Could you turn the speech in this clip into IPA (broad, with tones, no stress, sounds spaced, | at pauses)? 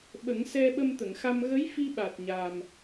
ɓ ə˨˩˦ ŋ s ɛ˧ ɓ ə˧ m t̪ ə˨˩˨ ŋ x a˧ m ɣ ə˧˥ j f i˧ ɓ a˨˩ t̚ ɲ a˨˩ m